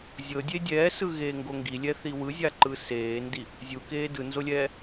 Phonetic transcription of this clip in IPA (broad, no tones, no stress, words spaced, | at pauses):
zʲɤdʲe dʲɛːsɯɣeːŋɡo ŋɡilʲɛθi wɯzʲaǃɯ seːndi | zʲukeː dɯnzolʲɛː